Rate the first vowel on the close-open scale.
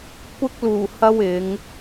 close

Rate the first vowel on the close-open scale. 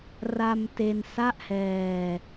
open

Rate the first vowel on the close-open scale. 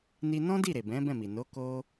close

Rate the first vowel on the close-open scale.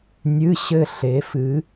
close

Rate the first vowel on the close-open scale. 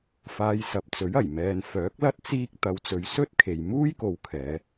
open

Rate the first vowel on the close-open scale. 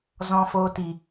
mid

